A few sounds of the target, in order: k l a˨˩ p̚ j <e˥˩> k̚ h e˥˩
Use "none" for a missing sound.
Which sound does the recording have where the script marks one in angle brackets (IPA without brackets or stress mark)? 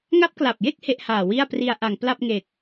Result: e˥˩